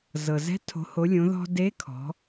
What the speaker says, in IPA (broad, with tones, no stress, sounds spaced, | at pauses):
z ɤ˩ z ɛ̤˧˥ tʰ o̤˩˧ h o˩˧ lʲ õ˩˧ ð ɔ̤˧ d e˧˥ kʰ ɔ̤˩˧